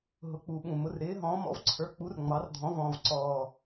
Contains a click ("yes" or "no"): yes